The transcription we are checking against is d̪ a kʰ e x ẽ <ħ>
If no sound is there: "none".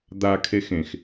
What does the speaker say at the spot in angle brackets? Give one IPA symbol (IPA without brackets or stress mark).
x